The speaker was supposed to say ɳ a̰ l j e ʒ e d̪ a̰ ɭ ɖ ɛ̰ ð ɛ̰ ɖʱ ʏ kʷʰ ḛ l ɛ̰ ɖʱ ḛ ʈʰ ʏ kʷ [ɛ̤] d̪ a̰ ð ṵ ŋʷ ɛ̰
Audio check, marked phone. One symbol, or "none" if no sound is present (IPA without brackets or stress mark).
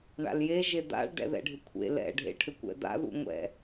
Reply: ɛ̰